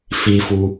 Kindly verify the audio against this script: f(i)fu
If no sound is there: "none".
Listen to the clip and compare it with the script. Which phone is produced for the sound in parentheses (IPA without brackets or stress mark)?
i